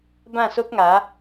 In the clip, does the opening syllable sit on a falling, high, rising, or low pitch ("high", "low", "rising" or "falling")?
falling